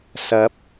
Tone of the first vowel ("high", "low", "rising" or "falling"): rising